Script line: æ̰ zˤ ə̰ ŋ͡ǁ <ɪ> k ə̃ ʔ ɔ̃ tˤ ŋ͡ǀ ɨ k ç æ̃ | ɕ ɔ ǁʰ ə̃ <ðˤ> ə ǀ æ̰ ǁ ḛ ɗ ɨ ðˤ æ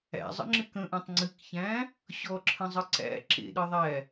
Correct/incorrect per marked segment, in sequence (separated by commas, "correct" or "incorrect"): correct, incorrect